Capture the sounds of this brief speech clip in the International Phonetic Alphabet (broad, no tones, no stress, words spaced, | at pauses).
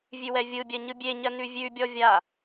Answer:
vʲʉwɛvʲɯbʲɜ ɲɯbʲeɲɜ nʉvʲʉbʲɔ vʲa